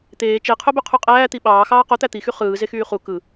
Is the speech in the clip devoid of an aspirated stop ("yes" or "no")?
no